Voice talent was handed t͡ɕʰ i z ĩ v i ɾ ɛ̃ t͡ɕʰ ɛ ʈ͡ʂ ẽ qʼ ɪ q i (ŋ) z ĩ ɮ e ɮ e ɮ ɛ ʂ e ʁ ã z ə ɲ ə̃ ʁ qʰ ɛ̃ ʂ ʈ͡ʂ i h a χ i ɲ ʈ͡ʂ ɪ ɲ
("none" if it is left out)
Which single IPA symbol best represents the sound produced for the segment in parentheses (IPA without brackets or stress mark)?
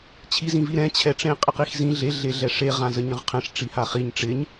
x